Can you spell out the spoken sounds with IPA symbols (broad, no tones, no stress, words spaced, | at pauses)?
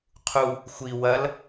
qʰu | xʷi wɐl